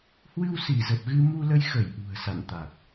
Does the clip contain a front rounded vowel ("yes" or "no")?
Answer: no